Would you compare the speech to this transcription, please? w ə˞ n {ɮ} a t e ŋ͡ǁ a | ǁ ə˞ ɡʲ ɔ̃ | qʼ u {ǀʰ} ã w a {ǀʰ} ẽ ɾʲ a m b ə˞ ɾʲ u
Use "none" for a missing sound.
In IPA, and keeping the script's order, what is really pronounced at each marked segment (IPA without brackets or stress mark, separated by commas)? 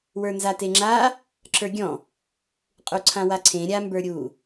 z, ǀʰ, ǀʰ